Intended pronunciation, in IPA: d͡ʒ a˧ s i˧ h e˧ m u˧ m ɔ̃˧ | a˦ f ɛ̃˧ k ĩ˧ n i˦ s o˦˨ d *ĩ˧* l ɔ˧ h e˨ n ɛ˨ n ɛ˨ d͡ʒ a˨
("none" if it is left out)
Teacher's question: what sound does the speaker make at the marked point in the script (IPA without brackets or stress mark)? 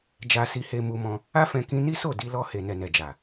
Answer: i˧